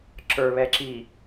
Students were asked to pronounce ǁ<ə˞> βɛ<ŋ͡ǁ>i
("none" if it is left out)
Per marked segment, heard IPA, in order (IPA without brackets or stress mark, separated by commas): ə˞, ǁ